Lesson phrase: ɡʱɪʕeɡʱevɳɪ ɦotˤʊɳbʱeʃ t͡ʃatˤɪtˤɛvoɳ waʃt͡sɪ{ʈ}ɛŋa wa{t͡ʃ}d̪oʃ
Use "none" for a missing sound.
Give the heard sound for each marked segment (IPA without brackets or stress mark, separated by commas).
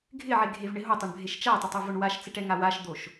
ʈ, ʃ